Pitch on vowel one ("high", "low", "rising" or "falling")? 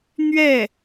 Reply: falling